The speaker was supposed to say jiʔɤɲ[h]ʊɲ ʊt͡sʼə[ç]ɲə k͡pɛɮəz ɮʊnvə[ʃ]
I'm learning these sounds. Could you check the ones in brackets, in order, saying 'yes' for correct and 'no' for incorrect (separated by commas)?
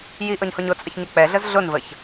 yes, yes, no